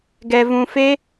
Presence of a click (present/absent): absent